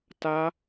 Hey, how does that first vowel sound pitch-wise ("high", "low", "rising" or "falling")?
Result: high